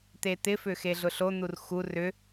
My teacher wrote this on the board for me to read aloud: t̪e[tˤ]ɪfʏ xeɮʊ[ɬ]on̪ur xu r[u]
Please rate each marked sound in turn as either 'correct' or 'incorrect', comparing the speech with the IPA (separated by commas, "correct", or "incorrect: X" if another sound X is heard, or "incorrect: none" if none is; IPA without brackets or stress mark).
incorrect: t̪, correct, incorrect: ʏ